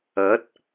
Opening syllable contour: rising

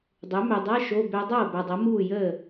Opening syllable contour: rising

